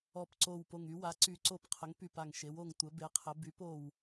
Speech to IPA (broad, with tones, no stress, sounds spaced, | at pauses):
ɔ˧˩ p ǀ o˧˩ w p o˧˩ ŋ y˩˥ w a˩˥ ǀ y˨˩˦ ǀ o˧˩ p qʰ ə˩˥ ŋ p y˧˩ p a˧˩ ŋ ʃ e˩˥ w o˧˩ ŋ tʷ ə˩˥ b e˩˥ qʰ ə˩˥ b y˩˥ p o˧˩ w